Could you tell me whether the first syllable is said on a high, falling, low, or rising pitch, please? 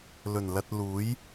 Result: low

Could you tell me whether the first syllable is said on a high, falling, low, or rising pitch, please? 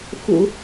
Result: low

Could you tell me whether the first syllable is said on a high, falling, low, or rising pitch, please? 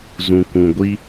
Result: low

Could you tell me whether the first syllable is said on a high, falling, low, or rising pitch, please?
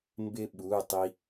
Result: high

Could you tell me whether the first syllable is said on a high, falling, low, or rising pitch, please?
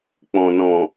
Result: low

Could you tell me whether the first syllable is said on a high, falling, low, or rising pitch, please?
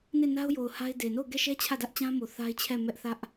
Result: falling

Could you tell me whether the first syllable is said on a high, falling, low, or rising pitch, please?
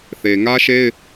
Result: low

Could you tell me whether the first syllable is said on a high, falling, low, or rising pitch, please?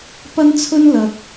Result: high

